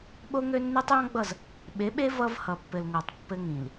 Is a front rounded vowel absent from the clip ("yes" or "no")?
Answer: no